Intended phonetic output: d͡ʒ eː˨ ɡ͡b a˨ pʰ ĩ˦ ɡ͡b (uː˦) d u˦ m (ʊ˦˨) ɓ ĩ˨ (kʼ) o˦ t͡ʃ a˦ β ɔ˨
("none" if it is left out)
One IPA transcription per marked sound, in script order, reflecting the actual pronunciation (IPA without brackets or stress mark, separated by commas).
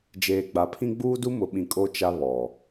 uː˦, ʊ˨, kʼ